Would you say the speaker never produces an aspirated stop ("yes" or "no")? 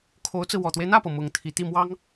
no